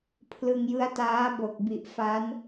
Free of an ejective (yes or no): yes